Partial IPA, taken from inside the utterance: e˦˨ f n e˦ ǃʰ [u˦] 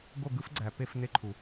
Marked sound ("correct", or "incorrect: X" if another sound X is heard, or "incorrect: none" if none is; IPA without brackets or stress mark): incorrect: u˨